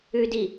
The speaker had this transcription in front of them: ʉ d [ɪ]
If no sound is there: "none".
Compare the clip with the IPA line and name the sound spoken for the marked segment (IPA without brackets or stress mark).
i